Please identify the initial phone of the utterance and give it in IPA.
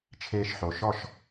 t͡ʃʰ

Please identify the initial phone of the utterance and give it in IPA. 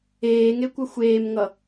eː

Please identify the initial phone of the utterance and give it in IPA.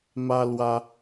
m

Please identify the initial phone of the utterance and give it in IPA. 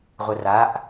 ʁʷ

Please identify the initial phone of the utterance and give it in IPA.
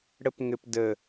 ɽ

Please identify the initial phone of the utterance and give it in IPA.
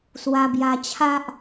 s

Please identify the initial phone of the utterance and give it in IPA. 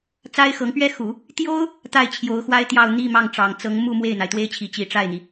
t͡s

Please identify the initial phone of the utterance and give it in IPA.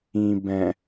ĩ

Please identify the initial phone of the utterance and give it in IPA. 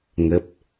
ŋ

